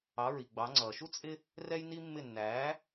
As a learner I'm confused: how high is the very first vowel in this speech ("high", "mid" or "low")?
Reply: low